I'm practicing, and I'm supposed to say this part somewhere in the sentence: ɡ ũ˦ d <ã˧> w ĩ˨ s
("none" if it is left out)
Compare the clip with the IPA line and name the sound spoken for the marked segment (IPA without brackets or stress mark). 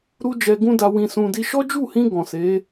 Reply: a˧